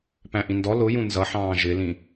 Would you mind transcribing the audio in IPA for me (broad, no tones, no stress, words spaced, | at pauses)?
pæ̃ʔĩndɔ lʊ jũnzʌħɑ̃ː ʒɪlĩ